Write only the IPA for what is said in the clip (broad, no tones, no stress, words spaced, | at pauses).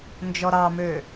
nd͡ʒɔɾɑmø